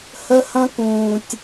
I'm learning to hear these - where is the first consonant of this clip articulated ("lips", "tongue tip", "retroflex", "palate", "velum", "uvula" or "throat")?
throat